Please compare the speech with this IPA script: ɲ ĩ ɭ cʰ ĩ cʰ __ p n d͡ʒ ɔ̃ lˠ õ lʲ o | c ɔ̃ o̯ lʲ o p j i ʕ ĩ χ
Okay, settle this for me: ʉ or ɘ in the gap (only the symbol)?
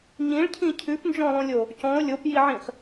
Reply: ʉ